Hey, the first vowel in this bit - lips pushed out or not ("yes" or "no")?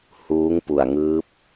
yes